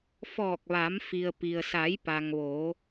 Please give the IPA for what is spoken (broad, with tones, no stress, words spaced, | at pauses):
fɔː˧˩k̚ʋa˩˧m fi˩ə̯pi˩ə̯sa˩˧j pa˩ŋʋo˩˧